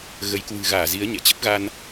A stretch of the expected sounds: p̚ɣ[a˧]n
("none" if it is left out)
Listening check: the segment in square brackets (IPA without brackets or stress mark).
a˧